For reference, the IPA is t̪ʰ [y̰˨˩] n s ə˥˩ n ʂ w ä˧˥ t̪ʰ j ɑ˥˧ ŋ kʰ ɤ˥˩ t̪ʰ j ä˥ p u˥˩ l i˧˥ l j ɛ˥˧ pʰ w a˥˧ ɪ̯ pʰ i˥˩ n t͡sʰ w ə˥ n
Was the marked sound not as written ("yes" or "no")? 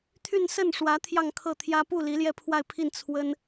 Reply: yes